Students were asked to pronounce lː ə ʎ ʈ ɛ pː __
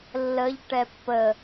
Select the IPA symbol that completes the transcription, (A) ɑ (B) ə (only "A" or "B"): B